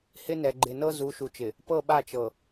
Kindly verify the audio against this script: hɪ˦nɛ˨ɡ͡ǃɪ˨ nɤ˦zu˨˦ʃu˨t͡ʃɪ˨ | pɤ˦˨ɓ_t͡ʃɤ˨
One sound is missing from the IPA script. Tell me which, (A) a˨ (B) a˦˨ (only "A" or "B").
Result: B